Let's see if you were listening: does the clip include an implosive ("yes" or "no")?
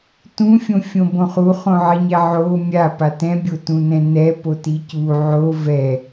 no